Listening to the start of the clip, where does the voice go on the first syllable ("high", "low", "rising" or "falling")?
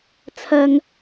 low